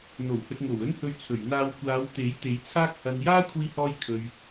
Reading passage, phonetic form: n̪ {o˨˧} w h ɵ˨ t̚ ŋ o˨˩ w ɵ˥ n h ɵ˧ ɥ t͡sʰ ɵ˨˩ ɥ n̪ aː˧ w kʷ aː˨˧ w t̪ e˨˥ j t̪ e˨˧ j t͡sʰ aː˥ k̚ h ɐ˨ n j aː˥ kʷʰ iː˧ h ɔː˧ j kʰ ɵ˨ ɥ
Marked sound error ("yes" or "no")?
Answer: yes